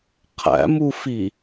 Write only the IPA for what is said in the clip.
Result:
qʰ æ̰ m u f i

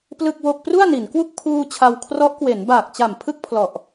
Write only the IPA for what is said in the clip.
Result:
p l ɯ˥˩ k̚ w o˥˩ k̚ p r u˥˩ a̯ n i˩˦ n k w u˥˩ k̚ pʰ uː˧ t͡ɕʰ a˧ w kʰ r ɔ˦˥ ʔ k w e˩˦ n b aː˨˩ k̚ t͡ɕ a˨˩ m pʰ ɯ˥˩ k̚ pʰ l ɔ˨˩ ʔ

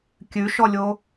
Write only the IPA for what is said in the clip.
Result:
kʲ ʉ ʃ ɔ lʲ o

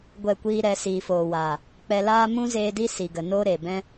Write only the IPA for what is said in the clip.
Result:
ɡʷ ɛ˦˨ kʷ iː˦ ɾ ɛ˨˦ s iː˨ f oː˨ w aː˨ | k͡p ɛ˧ l aː˦ m ũ˦ z eː˧ d i˦ s i˨ ɡ ə˨ n oː˦ ɾ e˨ b ɛ̃˦

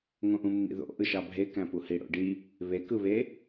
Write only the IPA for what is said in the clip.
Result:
ŋ õ ʔ ũ mː ḭ ð o̰ ʔ ɯ ʃ ɑ bʱ e k æ̃ p u h i ɽ o̰ ɖ i | β e k ɯ β e

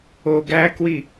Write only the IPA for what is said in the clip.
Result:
o ɡ æ k w i

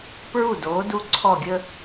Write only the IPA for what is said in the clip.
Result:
p ɹ u˧˩ d oː˩˧ d u˧ ǀʰ ɔ˧˩ ɡʲ ə˧

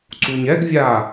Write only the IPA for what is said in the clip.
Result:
ǀ u ɲ ɛ ɡ vʲ a

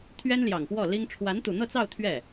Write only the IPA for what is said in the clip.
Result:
t̪ʰ ɥ ɛ˥ n l j ɑ˨˩ ŋ p w ɔ˥˩ l i˥ ŋ ʈ͡ʂʰ w a˧˥ n t̪ u˨˩ n̪ ɤ˥˧ t͡s ɑ˥˧ ʊ̯ t̪ʰ ɥ ɛ˥˩

